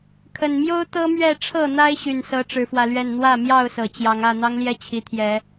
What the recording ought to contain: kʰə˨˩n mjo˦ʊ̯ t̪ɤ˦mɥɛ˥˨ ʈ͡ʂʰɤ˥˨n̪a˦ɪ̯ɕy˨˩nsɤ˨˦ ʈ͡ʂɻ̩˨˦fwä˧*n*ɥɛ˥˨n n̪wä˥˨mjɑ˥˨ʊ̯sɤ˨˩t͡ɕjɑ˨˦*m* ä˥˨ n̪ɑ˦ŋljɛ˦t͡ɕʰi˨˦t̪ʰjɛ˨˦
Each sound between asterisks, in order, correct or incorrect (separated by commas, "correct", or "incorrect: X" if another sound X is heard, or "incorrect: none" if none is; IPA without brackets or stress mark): incorrect: l, incorrect: ŋ